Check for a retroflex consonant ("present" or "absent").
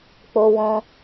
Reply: absent